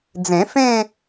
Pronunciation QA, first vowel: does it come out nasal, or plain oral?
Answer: nasal